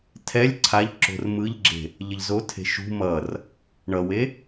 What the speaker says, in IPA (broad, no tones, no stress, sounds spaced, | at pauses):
tʰ ɛ lʲ ǀʰ a ʎ ǁ o̤ r m ɯ ʎ ɡ͡ǁ e̤ | ʎ ʌ ʎ z o tʰ e̤ ʃ ṳ m ʌ r | ɳ ʌ w e